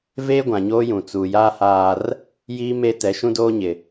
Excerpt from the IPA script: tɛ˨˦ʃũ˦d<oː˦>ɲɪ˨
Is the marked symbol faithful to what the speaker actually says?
yes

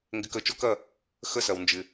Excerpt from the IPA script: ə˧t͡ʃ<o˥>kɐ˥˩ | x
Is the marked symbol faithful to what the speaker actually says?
yes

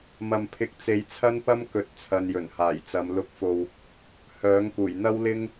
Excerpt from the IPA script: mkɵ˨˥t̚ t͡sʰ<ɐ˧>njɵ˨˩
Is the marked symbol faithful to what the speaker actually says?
yes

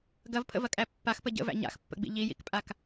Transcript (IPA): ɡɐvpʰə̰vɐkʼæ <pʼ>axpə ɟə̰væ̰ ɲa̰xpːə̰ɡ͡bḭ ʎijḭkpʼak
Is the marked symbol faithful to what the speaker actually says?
no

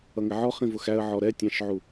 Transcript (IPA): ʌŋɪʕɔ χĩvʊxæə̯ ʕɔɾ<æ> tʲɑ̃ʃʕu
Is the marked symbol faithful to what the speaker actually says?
no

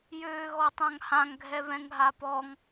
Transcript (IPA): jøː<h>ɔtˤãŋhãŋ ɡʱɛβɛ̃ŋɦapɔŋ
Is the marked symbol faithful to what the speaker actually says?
no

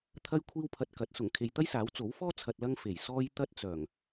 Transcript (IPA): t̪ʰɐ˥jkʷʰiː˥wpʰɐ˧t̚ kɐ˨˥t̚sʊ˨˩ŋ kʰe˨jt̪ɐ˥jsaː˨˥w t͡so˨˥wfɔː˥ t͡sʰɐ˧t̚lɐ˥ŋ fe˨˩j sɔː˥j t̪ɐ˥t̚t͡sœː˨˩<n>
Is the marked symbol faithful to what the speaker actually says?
no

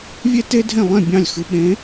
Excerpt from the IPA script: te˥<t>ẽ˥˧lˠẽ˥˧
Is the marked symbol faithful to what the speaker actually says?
no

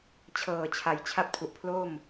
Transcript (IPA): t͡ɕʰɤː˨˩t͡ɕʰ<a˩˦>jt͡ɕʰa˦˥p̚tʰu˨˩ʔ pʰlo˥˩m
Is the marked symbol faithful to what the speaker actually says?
yes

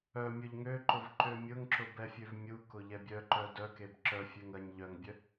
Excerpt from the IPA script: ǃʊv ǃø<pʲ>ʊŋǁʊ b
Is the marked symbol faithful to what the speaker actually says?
no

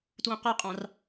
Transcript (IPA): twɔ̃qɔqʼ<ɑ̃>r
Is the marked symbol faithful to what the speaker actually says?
yes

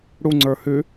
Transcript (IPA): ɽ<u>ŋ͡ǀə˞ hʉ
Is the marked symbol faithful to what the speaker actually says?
yes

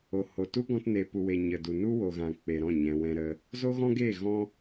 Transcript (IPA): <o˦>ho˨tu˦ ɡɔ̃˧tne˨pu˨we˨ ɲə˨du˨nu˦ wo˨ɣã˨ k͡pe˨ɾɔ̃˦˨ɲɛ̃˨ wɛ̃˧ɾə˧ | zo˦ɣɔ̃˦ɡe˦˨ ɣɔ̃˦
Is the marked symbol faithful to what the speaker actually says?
no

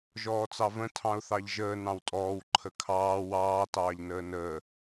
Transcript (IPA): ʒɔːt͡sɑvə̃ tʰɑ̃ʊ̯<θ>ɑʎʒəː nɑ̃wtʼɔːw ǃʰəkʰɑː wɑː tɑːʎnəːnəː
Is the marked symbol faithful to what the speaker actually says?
yes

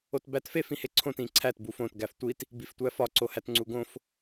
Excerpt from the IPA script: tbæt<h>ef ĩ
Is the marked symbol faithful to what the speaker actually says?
no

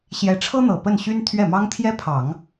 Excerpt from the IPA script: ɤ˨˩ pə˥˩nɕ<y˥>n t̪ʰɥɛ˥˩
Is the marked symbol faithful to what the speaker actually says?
yes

